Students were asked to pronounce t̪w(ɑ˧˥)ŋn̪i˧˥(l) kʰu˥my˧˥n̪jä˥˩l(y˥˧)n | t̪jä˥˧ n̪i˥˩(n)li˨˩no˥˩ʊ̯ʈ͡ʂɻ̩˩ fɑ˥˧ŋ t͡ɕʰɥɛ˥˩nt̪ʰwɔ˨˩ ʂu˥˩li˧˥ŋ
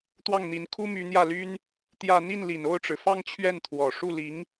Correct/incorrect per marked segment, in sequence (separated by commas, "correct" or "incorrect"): incorrect, incorrect, incorrect, correct